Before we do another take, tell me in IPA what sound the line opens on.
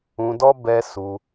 ũ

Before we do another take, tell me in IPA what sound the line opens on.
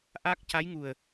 ʔ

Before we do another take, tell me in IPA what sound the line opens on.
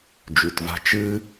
d͡ʒ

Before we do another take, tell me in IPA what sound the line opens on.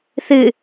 θ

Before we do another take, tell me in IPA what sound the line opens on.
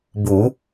b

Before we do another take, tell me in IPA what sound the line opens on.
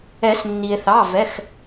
ɛ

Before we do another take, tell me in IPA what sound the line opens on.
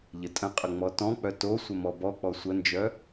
ʎ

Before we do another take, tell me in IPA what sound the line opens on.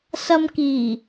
s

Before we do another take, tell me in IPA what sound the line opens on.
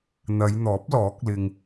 n̪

